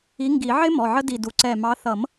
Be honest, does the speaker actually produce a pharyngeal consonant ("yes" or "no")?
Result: yes